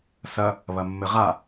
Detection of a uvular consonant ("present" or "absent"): present